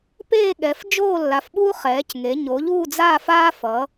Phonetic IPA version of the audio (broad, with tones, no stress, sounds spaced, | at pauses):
p eː˦˨ ɠ ɛ˩˧ f d͡ʒ oː˦˨ lː a˩˧ f ɓ uː˦ χ ɛː˩˧ c ŋ e˩˧ ɲ o˩˧ ʎ uː˦˨ d͡z aː˦˨ f aː˦ f ʌː˩˧